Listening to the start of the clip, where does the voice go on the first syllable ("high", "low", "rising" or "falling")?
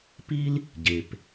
high